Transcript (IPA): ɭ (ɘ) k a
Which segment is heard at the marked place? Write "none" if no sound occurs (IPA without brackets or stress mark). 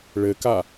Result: ɘ